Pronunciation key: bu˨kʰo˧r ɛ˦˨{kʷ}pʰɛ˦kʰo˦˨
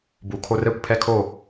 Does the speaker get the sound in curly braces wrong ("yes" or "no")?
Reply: no